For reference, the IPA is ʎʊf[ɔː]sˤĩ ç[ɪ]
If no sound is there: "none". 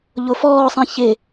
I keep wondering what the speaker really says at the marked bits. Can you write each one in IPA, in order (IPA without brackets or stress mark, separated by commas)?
ɔː, ɪ